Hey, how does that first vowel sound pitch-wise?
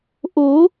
rising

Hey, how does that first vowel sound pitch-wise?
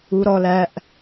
high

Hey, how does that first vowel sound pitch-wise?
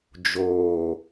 low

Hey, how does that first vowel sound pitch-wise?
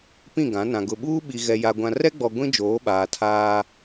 falling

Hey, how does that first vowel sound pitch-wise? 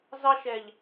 high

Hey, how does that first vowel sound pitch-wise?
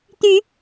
rising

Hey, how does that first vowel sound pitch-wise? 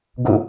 falling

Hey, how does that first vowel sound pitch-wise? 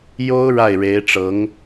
high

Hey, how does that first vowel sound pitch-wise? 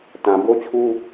low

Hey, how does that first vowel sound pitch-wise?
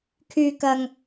low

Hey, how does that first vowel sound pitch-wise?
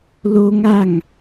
high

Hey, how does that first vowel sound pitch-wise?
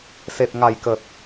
low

